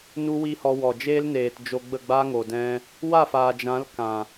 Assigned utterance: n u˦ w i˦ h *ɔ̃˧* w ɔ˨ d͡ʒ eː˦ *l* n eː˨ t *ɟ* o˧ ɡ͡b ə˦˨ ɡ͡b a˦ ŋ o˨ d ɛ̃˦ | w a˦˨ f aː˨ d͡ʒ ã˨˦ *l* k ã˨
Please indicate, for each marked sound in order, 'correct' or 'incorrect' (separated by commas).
incorrect, correct, incorrect, correct